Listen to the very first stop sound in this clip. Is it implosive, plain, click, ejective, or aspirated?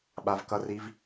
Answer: implosive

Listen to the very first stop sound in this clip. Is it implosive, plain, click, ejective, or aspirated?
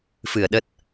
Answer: implosive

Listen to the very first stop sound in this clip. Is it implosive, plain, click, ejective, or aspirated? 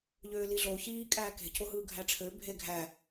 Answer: ejective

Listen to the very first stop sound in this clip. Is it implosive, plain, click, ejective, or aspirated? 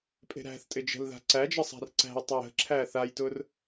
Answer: ejective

